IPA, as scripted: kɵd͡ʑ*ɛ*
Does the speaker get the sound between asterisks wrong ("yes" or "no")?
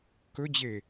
yes